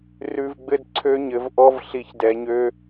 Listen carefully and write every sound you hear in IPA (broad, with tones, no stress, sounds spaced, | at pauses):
r ʉ˨ v ɡ͡b ɘ˦ d ǀʰ ø˦ ɲ ɘ˧ v ʔ ɔ˦ v ɬ i˧ ç d ɛ˧ ɲ ø˦